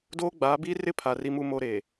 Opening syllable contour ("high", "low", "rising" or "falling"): high